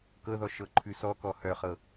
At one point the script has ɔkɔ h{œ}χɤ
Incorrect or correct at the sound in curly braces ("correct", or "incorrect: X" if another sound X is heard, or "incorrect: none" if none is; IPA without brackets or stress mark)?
correct